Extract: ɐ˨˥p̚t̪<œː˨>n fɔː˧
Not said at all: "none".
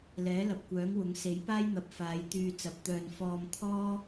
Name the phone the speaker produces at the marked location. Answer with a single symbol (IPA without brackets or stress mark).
œː˧